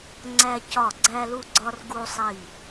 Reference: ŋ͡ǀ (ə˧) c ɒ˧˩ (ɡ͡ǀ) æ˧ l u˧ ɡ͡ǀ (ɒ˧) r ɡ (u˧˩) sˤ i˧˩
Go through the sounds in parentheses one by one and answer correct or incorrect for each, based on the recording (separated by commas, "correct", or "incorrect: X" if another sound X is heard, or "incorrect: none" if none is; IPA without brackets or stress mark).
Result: incorrect: æ˧, correct, correct, incorrect: u˧